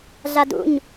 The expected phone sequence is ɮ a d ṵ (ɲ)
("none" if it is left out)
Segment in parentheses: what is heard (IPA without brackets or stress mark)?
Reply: ɲ